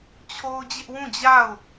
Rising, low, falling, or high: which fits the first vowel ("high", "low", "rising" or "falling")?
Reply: high